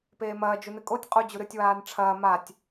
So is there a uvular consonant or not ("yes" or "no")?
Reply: yes